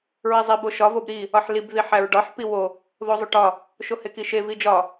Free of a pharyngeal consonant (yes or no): no